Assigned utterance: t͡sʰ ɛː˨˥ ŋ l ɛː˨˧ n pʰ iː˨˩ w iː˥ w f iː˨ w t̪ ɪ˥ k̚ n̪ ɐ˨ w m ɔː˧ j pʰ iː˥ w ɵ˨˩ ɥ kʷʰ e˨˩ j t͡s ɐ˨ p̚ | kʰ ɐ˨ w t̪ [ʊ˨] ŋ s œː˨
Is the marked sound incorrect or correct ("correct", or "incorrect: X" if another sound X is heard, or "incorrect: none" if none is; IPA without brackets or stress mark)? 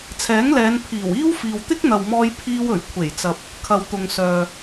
correct